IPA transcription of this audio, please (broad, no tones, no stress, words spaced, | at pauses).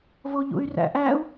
voʎṵy̯ræ̰ʔæu̯